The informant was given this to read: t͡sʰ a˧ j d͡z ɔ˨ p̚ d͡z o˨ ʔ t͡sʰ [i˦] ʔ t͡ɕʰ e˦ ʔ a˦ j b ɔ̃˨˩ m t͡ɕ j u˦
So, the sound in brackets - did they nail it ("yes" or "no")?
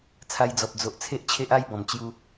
no